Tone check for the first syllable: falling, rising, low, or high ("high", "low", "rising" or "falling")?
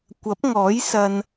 rising